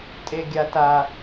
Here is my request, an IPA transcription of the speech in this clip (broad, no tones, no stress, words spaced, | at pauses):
tʼeɡʲata